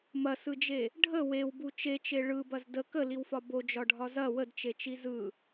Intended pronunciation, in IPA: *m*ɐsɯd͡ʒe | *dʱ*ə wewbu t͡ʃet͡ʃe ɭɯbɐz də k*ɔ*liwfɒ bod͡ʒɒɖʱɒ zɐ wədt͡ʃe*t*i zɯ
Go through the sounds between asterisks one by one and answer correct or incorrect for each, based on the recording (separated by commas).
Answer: correct, incorrect, incorrect, incorrect